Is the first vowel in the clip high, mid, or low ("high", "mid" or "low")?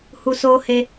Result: high